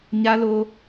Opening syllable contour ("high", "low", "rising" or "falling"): high